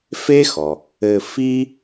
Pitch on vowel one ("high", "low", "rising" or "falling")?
high